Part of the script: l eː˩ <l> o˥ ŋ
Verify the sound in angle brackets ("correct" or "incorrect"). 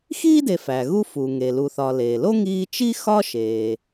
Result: correct